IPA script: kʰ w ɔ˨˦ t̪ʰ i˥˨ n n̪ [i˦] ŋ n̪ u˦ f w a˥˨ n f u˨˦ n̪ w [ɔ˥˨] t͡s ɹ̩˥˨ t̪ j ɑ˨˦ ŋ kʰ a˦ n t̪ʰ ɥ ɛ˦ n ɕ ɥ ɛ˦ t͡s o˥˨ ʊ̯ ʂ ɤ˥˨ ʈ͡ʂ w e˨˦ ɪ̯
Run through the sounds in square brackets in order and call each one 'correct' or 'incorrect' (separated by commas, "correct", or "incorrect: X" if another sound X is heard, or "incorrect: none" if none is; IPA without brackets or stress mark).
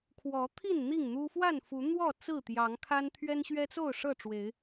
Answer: incorrect: i˥˨, correct